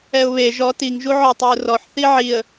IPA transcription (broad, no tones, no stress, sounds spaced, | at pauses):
ɛ ʊ̯ β e ʒ ɔ t i ŋ ʒ u ʕ ɔ tˤ ɛ ʊ̯ r ɔ ħ θ i ʕ i ə̯